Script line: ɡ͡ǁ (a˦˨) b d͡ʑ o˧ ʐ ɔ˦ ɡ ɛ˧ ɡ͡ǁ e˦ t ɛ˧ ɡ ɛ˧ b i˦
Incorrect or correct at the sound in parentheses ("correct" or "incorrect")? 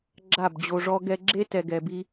correct